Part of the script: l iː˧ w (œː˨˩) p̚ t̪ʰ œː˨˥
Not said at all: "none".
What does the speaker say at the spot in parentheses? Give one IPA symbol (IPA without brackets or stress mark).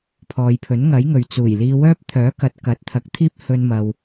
œː˥